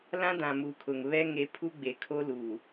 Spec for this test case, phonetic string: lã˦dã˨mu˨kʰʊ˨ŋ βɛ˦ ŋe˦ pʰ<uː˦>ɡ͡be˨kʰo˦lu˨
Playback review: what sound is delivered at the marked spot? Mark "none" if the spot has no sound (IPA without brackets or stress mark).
u˦